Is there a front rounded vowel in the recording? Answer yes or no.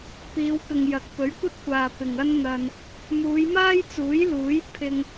no